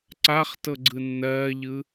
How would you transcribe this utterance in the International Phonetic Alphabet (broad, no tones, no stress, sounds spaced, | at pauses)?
ǀ a χ t ɤ ɡ͡ǀ ɯ nː ɜː ʎ ɯ